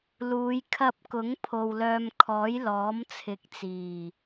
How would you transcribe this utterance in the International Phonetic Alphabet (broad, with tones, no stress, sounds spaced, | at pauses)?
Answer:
l uː˨˧ j kʰ ɐ˧ p̚ k ʊ˨˥ ŋ pʰ o˧ w l œː˧ m kʰ ɔː˨˥ j l ɔː˨˥ m t͡sʰ ɪ˨ k̚ t͡s iː˨˩